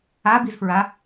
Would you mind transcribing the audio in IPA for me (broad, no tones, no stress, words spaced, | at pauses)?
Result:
abizfɹa